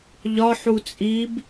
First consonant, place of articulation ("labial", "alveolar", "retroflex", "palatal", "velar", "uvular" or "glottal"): palatal